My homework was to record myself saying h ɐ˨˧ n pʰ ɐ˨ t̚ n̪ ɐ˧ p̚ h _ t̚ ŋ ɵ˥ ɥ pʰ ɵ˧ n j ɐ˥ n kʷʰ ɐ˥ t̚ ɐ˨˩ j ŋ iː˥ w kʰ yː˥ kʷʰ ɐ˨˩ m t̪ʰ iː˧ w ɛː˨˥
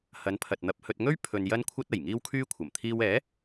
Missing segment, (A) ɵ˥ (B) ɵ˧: B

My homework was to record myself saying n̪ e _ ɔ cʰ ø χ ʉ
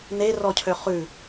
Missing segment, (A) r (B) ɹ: A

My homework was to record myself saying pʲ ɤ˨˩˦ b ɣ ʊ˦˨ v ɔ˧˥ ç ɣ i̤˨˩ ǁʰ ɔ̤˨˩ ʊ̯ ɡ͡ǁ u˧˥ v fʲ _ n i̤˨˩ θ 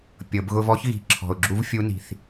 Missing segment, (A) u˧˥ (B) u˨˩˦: A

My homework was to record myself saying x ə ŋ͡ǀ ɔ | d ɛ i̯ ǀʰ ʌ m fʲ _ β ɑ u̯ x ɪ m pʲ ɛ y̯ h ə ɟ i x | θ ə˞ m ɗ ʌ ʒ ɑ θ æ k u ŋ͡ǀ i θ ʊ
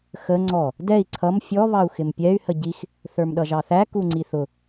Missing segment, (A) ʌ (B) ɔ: B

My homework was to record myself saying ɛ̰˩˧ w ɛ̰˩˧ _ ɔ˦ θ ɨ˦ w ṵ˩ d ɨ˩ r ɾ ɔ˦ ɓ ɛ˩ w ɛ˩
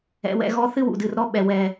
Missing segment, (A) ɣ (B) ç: A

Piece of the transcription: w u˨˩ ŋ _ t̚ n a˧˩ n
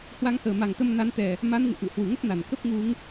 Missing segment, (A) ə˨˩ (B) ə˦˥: B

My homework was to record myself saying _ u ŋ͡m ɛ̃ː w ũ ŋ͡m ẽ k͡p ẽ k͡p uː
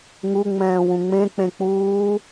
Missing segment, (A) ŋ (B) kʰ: A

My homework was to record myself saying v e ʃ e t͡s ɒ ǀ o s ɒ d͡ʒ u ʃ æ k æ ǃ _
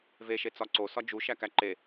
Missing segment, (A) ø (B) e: B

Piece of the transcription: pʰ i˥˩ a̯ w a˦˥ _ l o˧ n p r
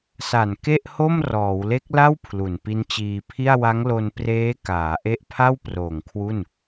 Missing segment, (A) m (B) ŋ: B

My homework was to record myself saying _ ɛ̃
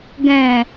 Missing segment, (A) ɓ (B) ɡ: B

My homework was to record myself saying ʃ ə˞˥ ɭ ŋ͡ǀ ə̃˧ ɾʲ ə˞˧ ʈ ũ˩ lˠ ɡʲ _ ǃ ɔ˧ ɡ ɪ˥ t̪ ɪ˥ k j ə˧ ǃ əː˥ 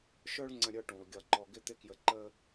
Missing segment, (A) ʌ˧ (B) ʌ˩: A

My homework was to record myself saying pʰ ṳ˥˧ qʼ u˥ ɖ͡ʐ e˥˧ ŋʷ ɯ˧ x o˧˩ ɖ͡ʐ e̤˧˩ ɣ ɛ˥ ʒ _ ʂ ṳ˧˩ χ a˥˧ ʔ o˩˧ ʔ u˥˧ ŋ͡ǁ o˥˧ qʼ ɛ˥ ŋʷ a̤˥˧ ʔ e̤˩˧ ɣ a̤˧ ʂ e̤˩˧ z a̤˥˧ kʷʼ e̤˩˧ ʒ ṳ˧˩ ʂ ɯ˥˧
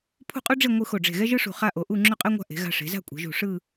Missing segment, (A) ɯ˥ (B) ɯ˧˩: A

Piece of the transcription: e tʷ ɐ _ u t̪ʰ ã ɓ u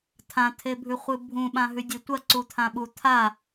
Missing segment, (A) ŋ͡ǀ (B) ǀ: B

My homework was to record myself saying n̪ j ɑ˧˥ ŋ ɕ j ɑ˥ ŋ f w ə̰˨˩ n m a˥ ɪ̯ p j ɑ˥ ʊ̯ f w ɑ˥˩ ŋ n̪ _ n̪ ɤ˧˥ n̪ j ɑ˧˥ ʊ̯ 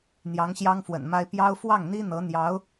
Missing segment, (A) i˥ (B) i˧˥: A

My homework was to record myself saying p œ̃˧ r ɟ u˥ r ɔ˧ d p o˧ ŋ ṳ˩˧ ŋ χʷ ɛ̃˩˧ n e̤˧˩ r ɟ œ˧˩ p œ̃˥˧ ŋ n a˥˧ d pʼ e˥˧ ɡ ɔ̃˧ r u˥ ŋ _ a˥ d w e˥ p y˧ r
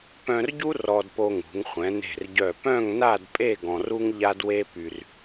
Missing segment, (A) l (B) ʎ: B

